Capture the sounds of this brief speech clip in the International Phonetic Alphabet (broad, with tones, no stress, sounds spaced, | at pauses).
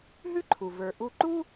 ɦ ʉ˥ ǃʰ u˩ v ə˞˩ ʔ u˧ ǃ u˥